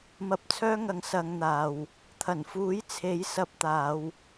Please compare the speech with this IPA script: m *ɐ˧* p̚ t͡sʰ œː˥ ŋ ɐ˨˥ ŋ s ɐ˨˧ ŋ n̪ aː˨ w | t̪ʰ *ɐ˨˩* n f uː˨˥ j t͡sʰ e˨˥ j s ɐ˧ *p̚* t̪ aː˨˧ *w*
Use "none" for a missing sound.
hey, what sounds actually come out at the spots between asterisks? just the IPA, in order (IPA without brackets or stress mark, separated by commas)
ɐ˧, ɐ˨˩, p̚, w